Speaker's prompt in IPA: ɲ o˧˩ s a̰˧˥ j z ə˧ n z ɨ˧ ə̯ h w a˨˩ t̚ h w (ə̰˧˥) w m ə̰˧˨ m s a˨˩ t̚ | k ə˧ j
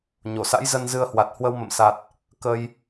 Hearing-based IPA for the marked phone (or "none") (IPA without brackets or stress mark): ə˧